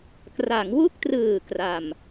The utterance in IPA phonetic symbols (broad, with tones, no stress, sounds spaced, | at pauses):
k r a˩˦ ŋ w u˥˩ k̚ t r ɯː˨˩ k r a˨˩ m